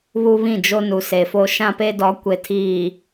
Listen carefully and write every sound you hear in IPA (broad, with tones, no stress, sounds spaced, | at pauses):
β u˦ β ĩ˦˨ d͡ʒ o˦ n u˨ s e˨ f o˦ ʃ ã˦ p e˦ d ɔ˨˦ kʷ e˨ tʰ iː˨